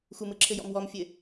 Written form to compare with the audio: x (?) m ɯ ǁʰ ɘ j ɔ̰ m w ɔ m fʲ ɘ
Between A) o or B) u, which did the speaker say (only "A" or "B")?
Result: B